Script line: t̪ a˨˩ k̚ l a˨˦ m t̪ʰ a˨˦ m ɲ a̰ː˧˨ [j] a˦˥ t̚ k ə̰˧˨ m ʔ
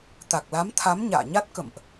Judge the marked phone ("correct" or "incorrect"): incorrect